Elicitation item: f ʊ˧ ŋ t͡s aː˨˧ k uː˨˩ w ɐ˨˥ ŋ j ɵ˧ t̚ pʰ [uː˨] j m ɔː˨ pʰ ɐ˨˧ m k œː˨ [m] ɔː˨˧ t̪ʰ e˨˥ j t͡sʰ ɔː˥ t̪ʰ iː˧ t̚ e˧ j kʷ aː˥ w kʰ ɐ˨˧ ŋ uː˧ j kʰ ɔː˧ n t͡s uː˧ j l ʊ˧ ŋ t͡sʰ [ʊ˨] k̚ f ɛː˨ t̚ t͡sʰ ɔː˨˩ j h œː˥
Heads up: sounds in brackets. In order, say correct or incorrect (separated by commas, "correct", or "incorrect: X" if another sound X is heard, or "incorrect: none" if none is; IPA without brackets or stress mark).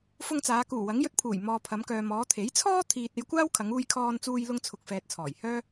incorrect: uː˨˩, correct, correct